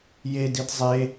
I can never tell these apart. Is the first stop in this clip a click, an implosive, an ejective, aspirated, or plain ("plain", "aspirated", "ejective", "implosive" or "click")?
plain